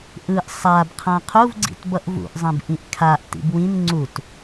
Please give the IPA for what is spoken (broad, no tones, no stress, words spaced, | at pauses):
ʔɯʔ sˤabqʰã qʰuvɡ͡ǀḭtbʌʔ vṵʔzˤẽb ʔĩʔkʰaʔ tḭbwĩn ŋ͡ǀut